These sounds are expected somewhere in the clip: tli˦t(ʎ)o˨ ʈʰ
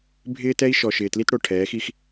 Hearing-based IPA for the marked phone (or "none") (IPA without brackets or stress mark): ɽ